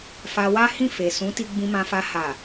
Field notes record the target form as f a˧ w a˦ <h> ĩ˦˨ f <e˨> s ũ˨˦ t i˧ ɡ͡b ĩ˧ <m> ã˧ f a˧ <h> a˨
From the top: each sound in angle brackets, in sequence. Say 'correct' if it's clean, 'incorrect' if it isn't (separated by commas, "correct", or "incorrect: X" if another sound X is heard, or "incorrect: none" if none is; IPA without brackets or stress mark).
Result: correct, correct, correct, correct